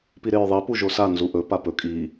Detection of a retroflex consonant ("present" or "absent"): absent